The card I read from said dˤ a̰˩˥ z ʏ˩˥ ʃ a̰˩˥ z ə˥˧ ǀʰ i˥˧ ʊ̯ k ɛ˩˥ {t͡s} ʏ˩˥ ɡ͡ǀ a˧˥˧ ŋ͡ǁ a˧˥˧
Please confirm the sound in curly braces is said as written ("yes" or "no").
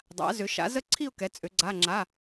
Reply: no